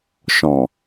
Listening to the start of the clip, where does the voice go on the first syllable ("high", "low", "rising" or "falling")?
low